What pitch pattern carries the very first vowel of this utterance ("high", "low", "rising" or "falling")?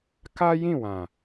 high